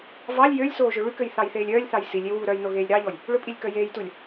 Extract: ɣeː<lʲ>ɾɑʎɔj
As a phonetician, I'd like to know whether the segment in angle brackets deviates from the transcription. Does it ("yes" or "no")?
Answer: no